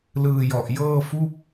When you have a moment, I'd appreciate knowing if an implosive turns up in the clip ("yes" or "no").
no